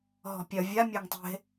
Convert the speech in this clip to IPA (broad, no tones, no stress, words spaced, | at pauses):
ɦɔ̤pʲɐ vʲa mʲaŋtˤe̤